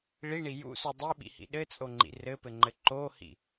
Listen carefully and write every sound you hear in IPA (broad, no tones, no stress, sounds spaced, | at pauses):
ɭ i ɳ i j ṵ s u dˤ i ɓ ḭ h ḭ ɗ ɘ t͡sʼ o ŋ͡ǃ ḭ r ɘ p ɘ ŋ͡ǃ ɘ ǃ o h ḭ